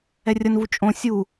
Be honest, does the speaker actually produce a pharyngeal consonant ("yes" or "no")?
no